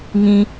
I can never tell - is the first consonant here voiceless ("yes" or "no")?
no